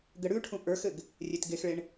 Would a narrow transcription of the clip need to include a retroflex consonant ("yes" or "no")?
yes